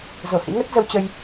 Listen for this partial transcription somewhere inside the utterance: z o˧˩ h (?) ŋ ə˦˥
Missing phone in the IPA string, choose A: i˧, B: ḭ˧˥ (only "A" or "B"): B